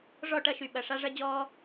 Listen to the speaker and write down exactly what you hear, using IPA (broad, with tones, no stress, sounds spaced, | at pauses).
ʐ ɔ˦˨ ʈ ɐ˦ ʃ y˨ ɓ ɐ˨ ʂ a˦ ʐ ɐ˦ d͡ʑ ɔː˦